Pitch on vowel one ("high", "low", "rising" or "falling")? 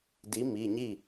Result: rising